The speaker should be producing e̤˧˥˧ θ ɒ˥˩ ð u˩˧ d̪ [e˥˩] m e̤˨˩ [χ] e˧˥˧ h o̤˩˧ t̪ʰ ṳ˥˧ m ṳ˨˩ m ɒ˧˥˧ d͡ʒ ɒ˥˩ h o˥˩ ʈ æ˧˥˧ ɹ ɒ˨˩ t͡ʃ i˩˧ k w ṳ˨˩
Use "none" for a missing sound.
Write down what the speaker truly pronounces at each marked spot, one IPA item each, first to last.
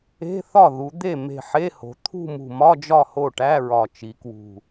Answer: e˥˩, ħ

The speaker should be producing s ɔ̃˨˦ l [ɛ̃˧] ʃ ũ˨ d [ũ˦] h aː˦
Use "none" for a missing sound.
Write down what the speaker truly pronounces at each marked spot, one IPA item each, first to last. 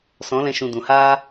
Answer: ɛ̃˧, ũ˨

